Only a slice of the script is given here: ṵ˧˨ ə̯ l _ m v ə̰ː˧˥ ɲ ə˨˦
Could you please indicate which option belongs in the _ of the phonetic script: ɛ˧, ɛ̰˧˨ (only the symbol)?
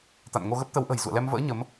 ɛ˧